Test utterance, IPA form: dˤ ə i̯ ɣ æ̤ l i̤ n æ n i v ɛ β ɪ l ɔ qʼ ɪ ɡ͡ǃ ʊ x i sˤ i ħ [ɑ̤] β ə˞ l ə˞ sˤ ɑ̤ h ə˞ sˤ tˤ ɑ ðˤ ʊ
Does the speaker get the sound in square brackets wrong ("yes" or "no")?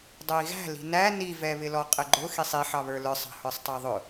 yes